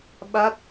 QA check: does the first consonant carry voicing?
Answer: yes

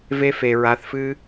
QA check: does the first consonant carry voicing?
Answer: yes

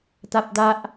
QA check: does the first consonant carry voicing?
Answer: no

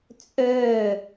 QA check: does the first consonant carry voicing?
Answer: no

